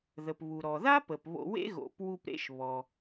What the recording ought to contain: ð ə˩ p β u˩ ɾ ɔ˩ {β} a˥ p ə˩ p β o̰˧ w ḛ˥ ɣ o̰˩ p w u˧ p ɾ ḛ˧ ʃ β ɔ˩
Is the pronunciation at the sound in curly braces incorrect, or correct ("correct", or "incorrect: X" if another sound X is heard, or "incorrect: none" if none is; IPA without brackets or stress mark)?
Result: incorrect: ð